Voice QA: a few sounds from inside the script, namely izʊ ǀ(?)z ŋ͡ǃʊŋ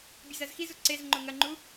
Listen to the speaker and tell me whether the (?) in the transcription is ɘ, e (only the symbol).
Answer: e